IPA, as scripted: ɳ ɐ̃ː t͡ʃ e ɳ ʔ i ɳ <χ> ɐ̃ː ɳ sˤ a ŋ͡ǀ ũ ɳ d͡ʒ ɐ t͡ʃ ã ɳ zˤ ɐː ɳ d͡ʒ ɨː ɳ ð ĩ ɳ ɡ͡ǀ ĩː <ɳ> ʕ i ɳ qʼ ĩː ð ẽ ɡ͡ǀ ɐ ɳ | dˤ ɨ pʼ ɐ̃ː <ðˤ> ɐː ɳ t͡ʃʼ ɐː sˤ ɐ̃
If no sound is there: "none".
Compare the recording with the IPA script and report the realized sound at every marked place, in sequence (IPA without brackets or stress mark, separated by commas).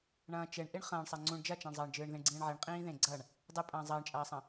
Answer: χ, ɳ, zˤ